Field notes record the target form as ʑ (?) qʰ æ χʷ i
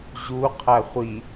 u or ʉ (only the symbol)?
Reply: u